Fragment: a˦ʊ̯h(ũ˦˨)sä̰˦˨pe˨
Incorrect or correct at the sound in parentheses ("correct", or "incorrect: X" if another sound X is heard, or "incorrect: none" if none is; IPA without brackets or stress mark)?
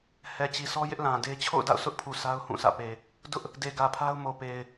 correct